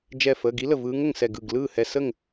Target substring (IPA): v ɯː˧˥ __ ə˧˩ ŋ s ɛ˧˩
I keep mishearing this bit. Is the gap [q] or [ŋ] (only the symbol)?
ŋ